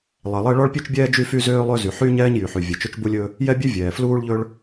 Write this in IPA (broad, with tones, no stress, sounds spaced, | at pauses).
lˠ ɛ˩ lˠ ɛ˥ ɭ ɔ˥ ɭ pʲ ʉ˥ t͡ʃ bʲ ɛː˥ d͡ʒ y˥ f y˥ z øː˥ lˠ ø˥ z y˩ ħ yː˥ ɲ ɛː˥ ɲ j y˩ ħ y˩ vʲ ɛ˩ t͡ʃ ɵ˥ t͡ʃ b u˥ lʲ ɵ˥ | j ɛ˥ bʲ ʉ˥ vʲ ɛː˩ f l uː˥ ɭ ʎ ɵ˥ ɭ